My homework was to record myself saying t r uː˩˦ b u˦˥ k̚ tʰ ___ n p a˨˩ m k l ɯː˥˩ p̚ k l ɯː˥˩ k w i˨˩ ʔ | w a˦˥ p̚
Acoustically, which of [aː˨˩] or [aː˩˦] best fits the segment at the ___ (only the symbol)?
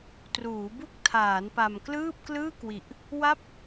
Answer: aː˩˦